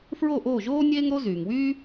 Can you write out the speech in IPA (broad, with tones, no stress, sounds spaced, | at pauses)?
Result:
f ɹ o˥˩ ʔ oː˥˩ ʒ oː˥ nʲ eː˥ ŋ ɾ o˥ z yː˩ ŋ w yː˥